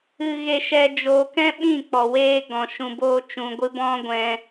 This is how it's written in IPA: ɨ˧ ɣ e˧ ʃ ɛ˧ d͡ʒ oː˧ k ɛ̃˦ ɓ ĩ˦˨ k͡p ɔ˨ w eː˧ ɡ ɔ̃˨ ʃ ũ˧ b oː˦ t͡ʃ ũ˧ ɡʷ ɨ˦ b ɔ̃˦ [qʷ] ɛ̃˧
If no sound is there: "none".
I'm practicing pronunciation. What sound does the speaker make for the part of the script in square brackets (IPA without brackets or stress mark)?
ɡʷ